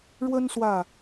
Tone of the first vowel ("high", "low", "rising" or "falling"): high